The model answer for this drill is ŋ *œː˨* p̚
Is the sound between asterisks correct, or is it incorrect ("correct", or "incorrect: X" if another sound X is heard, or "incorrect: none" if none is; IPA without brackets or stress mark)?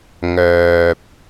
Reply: correct